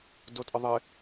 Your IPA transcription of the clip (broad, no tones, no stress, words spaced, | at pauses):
dotʼəðˤɪ